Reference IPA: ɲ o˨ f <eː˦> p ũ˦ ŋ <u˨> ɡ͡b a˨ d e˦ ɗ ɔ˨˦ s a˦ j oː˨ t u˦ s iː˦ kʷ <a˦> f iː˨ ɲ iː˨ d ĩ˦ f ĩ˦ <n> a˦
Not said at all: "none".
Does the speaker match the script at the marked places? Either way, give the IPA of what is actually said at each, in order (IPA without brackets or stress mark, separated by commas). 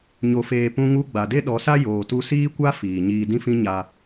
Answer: eː˨, u˦, a˦, ɲ